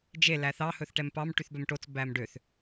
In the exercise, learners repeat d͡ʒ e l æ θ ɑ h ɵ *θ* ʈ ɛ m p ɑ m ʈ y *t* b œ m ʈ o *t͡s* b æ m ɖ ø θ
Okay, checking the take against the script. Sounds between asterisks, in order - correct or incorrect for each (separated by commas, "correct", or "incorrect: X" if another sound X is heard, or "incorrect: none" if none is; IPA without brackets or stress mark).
correct, incorrect: θ, correct